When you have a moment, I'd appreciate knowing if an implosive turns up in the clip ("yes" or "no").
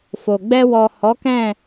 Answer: no